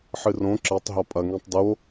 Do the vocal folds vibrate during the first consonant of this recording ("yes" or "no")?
no